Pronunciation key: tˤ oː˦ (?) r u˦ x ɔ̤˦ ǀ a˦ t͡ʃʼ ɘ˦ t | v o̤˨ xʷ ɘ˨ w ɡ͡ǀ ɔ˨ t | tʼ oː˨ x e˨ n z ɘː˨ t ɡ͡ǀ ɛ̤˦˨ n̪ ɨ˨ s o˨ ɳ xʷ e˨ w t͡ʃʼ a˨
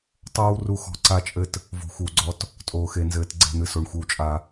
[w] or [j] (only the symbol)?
w